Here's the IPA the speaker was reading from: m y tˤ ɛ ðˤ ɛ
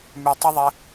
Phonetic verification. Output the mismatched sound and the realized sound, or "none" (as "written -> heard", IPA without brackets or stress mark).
none